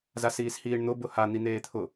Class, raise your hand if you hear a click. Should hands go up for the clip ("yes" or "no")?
no